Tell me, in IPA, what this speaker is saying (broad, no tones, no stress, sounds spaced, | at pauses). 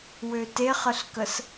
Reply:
w ø t e χ ə ɬ k ə s